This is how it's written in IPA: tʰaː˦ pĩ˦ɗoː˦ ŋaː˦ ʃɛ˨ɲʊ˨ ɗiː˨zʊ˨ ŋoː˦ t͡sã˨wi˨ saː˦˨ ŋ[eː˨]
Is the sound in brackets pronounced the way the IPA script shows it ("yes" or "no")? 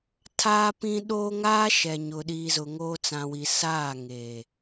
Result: yes